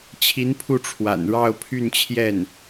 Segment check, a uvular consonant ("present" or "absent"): absent